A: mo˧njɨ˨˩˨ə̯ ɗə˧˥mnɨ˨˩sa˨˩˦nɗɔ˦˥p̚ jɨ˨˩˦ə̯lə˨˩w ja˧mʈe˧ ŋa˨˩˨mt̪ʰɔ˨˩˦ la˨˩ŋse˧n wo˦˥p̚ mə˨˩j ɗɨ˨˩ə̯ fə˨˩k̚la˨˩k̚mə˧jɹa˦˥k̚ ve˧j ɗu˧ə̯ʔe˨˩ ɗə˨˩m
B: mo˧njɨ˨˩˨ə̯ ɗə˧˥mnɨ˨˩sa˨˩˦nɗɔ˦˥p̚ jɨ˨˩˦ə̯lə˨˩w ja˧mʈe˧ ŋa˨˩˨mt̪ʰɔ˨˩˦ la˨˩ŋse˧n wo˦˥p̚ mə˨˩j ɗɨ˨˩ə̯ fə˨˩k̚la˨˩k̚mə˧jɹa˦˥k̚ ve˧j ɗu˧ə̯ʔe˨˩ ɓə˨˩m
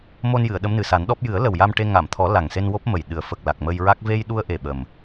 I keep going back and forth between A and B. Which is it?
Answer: B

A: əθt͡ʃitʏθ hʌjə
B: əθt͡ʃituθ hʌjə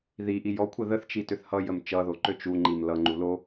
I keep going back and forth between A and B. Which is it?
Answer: A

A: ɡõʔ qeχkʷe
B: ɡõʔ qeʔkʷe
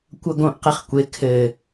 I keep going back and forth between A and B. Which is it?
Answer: A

